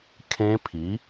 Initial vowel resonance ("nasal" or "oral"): nasal